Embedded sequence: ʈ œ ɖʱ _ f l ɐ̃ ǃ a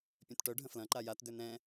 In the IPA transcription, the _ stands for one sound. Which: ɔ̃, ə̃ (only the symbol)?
ə̃